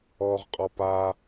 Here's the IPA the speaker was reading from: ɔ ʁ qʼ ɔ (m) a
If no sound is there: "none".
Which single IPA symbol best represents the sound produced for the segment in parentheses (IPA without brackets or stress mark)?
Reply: p